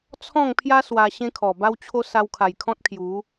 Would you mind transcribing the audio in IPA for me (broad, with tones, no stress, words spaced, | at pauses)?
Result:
t͡sʰɔ̃˥˧ŋpʰja˦ swa˧ ɕẽ˦kʰɔ˨˩ba˦wt͡ɕʰo˦ sa˧wkʰa˨˩jkʰɔ̃˦t̚kʰju˨˦